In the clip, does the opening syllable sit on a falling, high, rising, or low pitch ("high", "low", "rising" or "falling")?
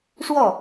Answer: falling